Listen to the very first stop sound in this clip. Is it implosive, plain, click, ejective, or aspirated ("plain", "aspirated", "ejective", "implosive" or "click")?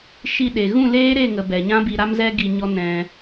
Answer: implosive